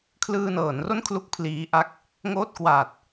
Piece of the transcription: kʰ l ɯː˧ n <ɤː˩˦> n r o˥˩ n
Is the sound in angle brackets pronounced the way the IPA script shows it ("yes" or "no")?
yes